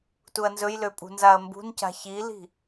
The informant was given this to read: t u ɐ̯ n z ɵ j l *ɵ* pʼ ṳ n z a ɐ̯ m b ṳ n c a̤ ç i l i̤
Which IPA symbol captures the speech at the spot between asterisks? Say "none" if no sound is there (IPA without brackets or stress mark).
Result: ø